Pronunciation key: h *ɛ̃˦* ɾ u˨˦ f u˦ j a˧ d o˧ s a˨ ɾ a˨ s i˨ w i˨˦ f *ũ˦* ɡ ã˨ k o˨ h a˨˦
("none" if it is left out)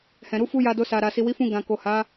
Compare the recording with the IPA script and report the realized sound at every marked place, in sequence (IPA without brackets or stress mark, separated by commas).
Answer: ɛ̃˨, ũ˧